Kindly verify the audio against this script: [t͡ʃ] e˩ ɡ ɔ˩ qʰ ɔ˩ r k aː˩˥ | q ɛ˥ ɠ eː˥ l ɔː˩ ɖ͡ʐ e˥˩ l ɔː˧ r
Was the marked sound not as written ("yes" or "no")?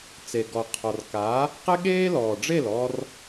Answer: yes